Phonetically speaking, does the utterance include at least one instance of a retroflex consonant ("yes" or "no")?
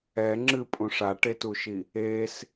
yes